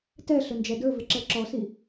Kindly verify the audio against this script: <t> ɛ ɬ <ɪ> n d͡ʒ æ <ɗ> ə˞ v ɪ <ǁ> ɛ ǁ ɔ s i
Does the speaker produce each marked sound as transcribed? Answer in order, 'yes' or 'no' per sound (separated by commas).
yes, no, no, yes